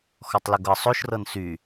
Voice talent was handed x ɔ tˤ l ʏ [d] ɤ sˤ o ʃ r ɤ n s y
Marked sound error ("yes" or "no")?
yes